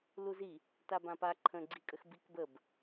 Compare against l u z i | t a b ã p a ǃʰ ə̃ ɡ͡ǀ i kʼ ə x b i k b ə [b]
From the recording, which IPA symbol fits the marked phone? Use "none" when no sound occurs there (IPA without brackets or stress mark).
b